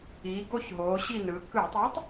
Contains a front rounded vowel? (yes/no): no